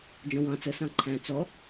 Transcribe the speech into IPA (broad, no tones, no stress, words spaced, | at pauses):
d͡ʒɔ̃wɑ̃ t͡sə sɑ̃ǃʰæ̃ t͡sɔ